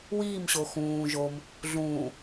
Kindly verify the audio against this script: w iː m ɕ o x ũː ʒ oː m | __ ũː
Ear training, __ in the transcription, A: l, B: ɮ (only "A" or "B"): B